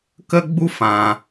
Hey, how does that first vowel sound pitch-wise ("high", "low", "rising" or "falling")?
high